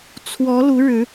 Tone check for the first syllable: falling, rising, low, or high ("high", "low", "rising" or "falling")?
rising